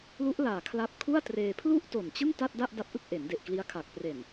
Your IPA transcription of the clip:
lu˦˥ʔlaː˨˩ kʰla˦˥p̚ kʰu˥˩a̯treː˧ pʰlu˥˩ʔ to˨˩nt͡ɕɯ˥˩ŋ ta˥˩t̚da˥˩ʔ da˦˥p̚ʔɯ˥˩k̚ʔe˩˦nde˨˩ʔ kli˦˥a̯kʰa˨˩k̚ pre˨˩n

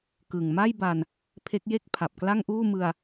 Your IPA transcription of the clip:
kɯ˨˩ŋ ma˥˩jba˧n | pʰe˦˥k̚ je˥˩k̚pʰa˨˩p̚kla˥˩ŋʔuː˥˩ mɯ˧a̯

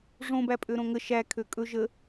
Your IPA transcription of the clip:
ʐõ bæpʼøɾõŋə ʃæ kʰøkʼɵ ʒə

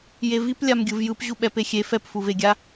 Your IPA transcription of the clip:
jevip lʲamɡʲɯvjɯp ʑuɓɛpexʲe fɛpfuveɡʲa

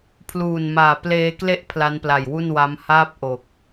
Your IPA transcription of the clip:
pʰluː˨˩nmaː˨˩ pleː˧kle˥˩ʔ pʰla˦˥npla˨˩jwu˥˩nwa˦˥m haː˦˥p̚ ʔo˨˩k̚

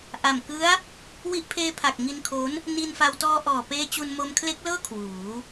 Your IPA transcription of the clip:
ʔa˨˩m kɯ˦˥a̯ | wi˦˥ʔpʰeː˦˥pʰa˨˩k̚ ŋi˧nkʰo˦˥n | ni˧nfa˧w tɔː˧ʔɔː˨˩peː˧ t͡ɕu˧nmo˧mkʰle˦˥k̚lɤː˥˩ kʰwuː˩˦

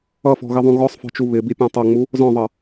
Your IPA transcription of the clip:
ʌfɔ̤ɣɪðˤũ ɣɔsˤfɔ̤t͡ʃu βɪbipʲɔ̃ tˤʌŋ͡mu | zɔ̃ðˤʌ

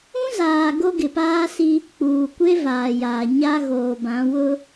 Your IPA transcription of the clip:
ũ˦zaː˨ ɡo˦ɡɪ˨paː˦si˦ | k͡puː˨kʷe˦vaː˨ jaː˨ ɲa˦ɣoː˨bã˨˦ wʊ˦

